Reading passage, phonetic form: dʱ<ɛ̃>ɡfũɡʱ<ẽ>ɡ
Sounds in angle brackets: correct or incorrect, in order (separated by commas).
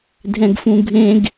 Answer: correct, correct